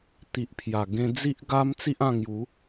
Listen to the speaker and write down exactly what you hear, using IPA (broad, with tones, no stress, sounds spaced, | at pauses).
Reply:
t̪ i˨ ʔ pʰ j a˨˩ ɡ ẽ˧ d͡z i˦ ʔ ɡ a˦ m t͡s i˦ ʔ ã˧ ŋ j u˨˦